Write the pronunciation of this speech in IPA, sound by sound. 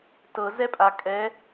t ɤ z ɛ pʼ a kʼ ɛ

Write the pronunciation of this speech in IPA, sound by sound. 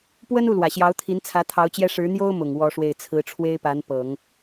p w ə˥ n u˥˩ l w ä˨˩ ɕ j ɑ˧˥ ʊ̯ t̪ʰ i˧˥ n t͡sʰ ä˧˥ t̪ʰ ɑ˧˥ ʊ̯ t͡ɕ j ɛ˥ ʂ ɻ̩˧˥ n̪ j o˥ ʊ̯ m ʊ˨˩ ŋ w ɔ˥ ʂ w e˥˩ ɪ̯ t͡sʰ ɹ̩˧˥ ʈ͡ʂʰ w e˥ ɪ̯ p a˧˥ n p ɤ˨˩˦ ŋ

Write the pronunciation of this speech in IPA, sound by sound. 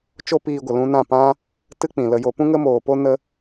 t͡ʃ o˦ p iː˧ ɡʷ ə˨ l ũ˧ n ã˦˨ p ã˦ | t ɨ˦ k͡p ĩ˨ l ə˧ j o˧ p ũ˦ ŋ ə˦ m oː˨ p o˦ n ə˦

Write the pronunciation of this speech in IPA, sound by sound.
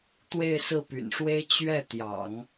t̪ w e˥˧ ɪ̯ s ɹ̩˥˩ p y̰˨˩ n ʂ w e˥ ɪ̯ t͡ɕ ɥ ɛ˥˩ t̪ j ɑ̰˨˩˦ ŋ

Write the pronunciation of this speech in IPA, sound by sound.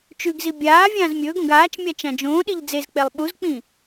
t͡ʃ ʉ ɡ z i bʲ aː vʲ ãː z mʲ ɵː ɡ õ ɡ aː t͡ʃ mʲ a t͡ʃ ã d͡ʒ õː ɗ i ʎ d͡z e z k͡p e lˠ ɓ u z k͡p ĩ

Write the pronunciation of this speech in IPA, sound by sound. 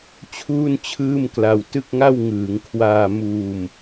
t͡ɕʰ uː˥˩ n t͡ɕʰ ɯː˥˩ m k l a˧ w t ɯ˥˩ k̚ ŋ a˥˩ w ŋ ɯː˩˦ ŋ kʰ w aː˧ m uː˧ m

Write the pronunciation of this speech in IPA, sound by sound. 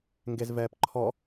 ŋ ɡ e z v ɛː p ǃʰ ɔ

